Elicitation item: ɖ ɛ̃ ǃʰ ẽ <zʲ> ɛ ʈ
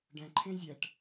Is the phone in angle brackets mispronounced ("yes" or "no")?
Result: no